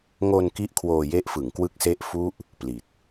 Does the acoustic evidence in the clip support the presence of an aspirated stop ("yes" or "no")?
yes